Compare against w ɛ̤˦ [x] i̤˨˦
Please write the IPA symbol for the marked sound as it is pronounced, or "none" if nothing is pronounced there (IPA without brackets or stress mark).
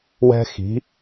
x